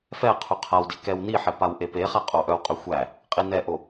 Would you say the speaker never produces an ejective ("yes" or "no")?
no